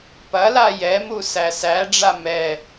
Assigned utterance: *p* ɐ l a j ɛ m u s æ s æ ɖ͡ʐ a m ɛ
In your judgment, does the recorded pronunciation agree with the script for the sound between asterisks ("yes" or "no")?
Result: yes